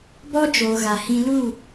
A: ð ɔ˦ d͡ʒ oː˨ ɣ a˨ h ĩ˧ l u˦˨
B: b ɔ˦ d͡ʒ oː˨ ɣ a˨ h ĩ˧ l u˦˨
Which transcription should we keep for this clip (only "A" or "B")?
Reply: B